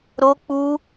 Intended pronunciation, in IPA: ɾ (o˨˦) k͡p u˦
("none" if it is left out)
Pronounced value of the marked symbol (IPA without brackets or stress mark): o˦